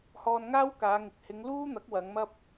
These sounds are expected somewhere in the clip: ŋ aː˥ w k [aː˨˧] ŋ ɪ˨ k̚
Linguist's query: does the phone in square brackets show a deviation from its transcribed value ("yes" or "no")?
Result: no